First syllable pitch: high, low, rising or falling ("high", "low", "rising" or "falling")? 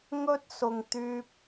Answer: high